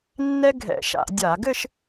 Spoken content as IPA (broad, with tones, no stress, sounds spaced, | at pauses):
nː ɛ˥ ɡʱ ɛ̰˧˩˧ ʃ a̰˧˩˧ dʲ a˧˩˧ ɡ ɘ˥˧ ʃ